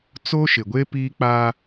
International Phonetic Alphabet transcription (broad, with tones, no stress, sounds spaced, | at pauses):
t͡s o˦ ʃ ɪ˨ ɡʷ e˦ p iː˦ k͡p a˦